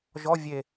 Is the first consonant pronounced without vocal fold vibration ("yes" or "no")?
no